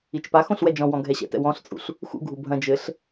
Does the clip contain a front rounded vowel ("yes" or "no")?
no